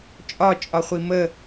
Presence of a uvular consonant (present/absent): present